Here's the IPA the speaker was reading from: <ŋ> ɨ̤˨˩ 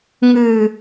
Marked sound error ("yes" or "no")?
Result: no